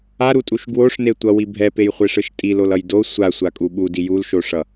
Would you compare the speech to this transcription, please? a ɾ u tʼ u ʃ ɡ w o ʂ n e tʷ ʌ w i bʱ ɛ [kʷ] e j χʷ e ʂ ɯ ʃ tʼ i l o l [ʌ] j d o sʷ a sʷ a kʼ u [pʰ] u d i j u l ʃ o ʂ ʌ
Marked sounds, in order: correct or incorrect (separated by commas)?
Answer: incorrect, correct, incorrect